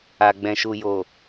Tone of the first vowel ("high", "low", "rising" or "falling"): low